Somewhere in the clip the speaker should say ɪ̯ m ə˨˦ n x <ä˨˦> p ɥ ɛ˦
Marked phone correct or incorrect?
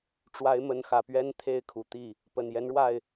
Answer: incorrect